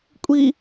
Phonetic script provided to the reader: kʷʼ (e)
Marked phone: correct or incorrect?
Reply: incorrect: i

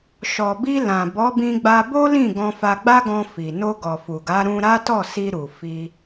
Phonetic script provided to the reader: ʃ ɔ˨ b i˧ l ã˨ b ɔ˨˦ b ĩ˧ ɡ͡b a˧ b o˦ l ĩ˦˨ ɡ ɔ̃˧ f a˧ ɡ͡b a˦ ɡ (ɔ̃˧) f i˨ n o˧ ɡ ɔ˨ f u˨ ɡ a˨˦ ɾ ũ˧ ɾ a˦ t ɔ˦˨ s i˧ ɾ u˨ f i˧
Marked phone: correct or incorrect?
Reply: correct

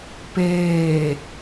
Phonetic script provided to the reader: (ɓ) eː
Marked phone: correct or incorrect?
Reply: incorrect: p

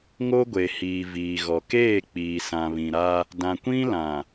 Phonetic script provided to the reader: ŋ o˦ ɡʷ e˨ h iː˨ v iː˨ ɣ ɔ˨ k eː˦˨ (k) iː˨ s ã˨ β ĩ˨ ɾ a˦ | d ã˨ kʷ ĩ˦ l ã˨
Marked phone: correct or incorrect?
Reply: incorrect: k͡p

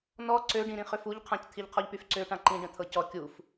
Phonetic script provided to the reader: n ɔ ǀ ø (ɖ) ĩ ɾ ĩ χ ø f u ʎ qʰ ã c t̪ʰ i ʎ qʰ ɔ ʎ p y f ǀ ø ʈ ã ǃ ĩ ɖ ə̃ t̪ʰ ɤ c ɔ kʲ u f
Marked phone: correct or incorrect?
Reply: correct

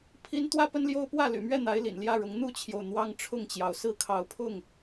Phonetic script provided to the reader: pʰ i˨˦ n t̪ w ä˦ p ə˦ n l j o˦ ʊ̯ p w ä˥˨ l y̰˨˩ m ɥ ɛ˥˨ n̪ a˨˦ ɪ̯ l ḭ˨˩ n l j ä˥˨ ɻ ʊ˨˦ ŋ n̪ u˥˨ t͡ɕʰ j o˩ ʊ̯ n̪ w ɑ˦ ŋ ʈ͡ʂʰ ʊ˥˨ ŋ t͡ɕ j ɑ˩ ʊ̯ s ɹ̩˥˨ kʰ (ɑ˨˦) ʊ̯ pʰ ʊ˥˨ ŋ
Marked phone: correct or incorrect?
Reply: correct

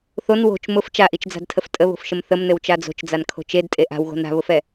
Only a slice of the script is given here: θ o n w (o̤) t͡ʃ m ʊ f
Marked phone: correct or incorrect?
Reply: correct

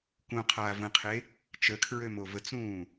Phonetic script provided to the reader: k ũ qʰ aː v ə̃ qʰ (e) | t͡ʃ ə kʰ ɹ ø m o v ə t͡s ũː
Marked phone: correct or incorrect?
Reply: correct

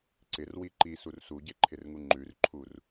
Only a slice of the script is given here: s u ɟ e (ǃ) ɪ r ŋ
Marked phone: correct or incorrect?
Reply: incorrect: ǃʰ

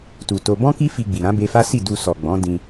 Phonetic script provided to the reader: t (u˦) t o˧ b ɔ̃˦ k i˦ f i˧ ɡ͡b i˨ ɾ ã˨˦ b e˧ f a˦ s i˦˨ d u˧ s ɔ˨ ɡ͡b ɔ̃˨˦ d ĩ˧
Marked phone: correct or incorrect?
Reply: incorrect: u˨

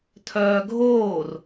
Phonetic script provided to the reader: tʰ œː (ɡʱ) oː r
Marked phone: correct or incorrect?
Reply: correct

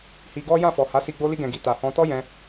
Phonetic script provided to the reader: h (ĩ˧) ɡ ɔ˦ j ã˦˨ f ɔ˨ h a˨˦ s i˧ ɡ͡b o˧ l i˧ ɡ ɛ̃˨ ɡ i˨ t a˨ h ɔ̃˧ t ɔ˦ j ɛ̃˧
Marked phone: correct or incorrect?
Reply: incorrect: i˧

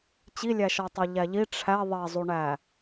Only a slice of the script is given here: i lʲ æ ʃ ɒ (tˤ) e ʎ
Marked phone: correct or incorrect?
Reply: correct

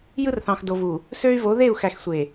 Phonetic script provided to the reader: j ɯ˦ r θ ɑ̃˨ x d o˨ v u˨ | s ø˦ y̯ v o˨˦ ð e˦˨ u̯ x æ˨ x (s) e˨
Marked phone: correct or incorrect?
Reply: incorrect: sʷ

